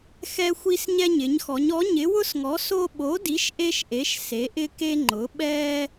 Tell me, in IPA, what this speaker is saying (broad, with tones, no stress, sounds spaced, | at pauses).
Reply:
x ɛ˥ xʷ i˥ s ɲ ɛ˥ ɲ ɪ˨˥ ɲ x ɔ˨˥ ɲ ɔ˨˥ ɲ ɪ˨˥ w ʊ˥ s ŋ ɔ˨˥ s o˥ ɓ o˨˥ d i˨˥ ʃ ʔ e˥ ʃ ʔ e˨˥ ʃ s e˨˥ ʔ ɪ˥ k e˥ ŋ͡ǃ ʊ˨˥ ɓ ɛ˥